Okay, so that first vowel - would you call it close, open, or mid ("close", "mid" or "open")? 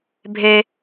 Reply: mid